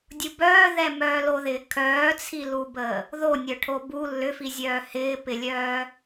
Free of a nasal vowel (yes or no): yes